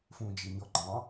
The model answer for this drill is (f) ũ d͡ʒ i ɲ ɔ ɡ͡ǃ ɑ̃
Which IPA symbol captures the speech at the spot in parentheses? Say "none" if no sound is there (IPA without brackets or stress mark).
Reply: f